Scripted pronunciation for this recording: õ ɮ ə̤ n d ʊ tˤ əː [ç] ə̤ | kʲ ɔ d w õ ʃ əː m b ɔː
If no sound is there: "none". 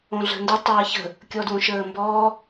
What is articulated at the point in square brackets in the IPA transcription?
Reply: ç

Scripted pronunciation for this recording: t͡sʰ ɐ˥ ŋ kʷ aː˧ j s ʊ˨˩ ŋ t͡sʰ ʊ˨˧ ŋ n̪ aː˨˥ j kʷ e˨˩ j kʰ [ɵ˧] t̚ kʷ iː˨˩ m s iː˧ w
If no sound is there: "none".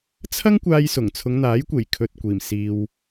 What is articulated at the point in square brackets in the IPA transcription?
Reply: ɵ˧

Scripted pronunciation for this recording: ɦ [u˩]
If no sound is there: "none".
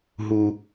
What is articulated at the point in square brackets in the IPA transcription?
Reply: u˩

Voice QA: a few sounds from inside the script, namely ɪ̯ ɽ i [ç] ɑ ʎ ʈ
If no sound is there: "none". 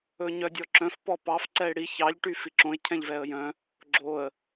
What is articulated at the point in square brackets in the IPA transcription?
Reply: ç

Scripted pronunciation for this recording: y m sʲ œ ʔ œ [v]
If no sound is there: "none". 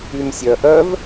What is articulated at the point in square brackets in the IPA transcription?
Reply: v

